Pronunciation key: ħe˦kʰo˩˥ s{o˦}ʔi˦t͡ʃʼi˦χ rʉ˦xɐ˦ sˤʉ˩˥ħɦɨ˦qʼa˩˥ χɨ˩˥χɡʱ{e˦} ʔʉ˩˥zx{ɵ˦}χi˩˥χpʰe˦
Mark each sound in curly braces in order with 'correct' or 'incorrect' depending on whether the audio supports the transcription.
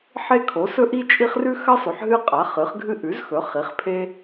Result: incorrect: ɵ˦, incorrect: ɨ˦, incorrect: ɵ˩˥

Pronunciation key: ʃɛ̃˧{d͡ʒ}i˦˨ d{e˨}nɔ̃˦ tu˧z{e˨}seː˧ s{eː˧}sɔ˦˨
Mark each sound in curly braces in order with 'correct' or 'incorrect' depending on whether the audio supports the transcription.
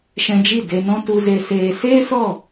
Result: correct, incorrect: e˧, incorrect: e˧, incorrect: eː˦

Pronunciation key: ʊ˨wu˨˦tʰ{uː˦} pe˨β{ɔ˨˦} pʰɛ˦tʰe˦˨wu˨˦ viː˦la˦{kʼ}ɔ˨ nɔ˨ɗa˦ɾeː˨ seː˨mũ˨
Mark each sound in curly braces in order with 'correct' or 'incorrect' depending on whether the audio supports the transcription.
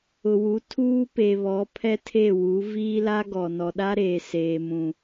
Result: correct, correct, incorrect: ɡ

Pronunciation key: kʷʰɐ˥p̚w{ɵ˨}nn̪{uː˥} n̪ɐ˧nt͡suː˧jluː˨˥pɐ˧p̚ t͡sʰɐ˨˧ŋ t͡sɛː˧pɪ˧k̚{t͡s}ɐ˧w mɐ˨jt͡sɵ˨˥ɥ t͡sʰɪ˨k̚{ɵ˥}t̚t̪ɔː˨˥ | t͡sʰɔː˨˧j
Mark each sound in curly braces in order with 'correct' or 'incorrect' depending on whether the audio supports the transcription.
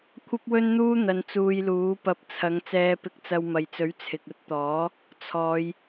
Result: incorrect: ɵ˥, correct, correct, correct

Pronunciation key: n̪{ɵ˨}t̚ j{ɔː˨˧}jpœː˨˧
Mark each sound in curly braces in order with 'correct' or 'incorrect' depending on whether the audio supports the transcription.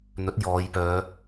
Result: incorrect: ɵ˨˥, correct

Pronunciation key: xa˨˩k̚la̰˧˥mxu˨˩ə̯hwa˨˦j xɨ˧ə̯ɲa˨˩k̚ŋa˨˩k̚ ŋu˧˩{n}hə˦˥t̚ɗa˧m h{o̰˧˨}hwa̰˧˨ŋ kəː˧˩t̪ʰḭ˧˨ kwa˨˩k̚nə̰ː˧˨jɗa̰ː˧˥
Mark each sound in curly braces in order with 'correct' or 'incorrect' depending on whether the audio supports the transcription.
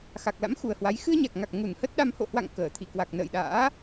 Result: correct, correct

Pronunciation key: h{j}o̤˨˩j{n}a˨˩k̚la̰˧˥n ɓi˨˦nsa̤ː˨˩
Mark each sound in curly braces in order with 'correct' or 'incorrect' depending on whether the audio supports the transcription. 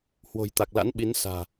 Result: incorrect: w, incorrect: t̪

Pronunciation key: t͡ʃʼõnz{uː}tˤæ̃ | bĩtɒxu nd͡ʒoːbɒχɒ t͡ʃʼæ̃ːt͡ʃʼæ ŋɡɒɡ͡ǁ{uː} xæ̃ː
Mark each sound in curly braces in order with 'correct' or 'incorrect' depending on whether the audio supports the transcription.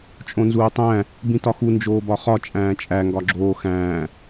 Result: correct, incorrect: oː

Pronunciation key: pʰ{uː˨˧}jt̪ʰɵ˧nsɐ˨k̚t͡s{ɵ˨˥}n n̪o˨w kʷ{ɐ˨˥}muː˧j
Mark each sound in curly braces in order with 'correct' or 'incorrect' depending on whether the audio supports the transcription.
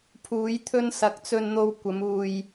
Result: correct, incorrect: ɵ˧, incorrect: ɐ˨˧

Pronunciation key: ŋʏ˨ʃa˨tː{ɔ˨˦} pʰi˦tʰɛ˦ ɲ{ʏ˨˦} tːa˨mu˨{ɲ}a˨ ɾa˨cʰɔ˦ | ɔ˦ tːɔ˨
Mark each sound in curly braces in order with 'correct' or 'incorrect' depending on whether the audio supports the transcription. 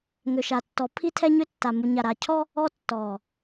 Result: correct, incorrect: ʏ˦, correct

